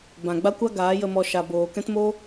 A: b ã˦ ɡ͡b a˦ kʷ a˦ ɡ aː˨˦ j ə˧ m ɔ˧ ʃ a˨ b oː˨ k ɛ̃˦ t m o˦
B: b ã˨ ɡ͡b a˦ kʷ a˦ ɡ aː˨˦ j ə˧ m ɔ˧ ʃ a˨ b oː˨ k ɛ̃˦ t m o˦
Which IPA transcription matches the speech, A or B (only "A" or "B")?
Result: B